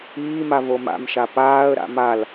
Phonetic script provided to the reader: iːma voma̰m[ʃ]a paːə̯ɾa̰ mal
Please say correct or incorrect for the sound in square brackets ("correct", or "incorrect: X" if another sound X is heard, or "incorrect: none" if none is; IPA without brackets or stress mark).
correct